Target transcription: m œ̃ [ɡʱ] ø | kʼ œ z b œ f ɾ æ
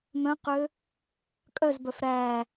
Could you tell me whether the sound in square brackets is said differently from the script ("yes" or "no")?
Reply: yes